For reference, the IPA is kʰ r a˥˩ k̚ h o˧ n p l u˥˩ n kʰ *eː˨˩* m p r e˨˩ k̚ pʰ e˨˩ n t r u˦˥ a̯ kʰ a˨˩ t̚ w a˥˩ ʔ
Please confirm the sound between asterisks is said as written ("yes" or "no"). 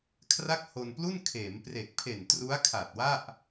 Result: no